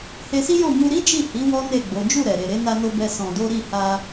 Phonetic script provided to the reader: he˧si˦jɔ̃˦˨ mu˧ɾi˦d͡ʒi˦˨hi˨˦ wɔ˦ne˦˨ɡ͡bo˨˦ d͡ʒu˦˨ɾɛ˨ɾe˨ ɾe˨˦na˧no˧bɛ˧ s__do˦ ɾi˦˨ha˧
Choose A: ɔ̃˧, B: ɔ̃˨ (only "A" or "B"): A